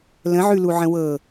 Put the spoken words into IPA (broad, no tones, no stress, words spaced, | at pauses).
lə̃ʕʉluʕə̃ wɤ